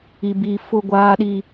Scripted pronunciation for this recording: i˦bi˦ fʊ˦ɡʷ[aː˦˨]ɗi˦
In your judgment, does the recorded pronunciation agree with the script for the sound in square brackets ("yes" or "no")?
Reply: no